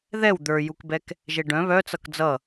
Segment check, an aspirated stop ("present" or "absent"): absent